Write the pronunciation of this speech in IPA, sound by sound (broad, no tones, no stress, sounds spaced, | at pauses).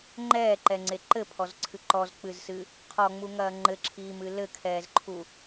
ŋ͡ǃ ɛː ǃ ɛ ŋ͡ǀ e ǃ ɘ pʰ ɔ z ǀʰ ɨ ǃ ɔ z k͡p ɨ z s ɨ | qʰ ɔ ŋ͡m u ŋ ɐː ŋ͡ǃ ɘ ǁʰ iː m ɨ l ɘ kʰ ɛː z ǃʰ u